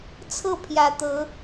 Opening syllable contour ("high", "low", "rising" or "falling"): falling